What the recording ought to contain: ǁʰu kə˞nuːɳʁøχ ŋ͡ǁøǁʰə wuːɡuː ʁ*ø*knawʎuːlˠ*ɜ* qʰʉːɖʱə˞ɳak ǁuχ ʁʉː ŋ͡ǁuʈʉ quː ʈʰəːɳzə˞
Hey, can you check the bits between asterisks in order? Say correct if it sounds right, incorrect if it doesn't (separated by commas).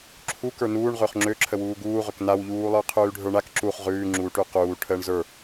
correct, incorrect